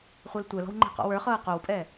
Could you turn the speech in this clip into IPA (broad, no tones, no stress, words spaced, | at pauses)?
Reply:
χʷɛltʷɛlɔ̤w ŋ͡ǃɛ̤qɔ̰wə˞χɤː qowpʼɛ